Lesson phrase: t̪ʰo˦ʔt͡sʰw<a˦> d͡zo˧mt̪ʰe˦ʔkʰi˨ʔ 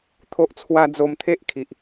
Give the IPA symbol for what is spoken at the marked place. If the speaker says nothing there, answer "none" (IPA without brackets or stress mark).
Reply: a˦